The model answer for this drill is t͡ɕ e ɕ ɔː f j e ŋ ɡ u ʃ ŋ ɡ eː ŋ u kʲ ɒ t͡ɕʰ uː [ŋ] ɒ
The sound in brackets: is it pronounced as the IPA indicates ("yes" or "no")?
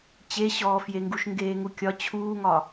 yes